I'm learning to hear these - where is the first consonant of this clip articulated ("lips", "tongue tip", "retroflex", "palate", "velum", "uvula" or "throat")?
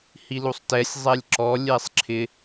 throat